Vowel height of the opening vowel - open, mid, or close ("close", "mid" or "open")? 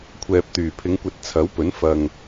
mid